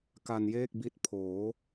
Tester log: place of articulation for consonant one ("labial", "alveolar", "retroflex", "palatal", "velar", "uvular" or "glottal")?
velar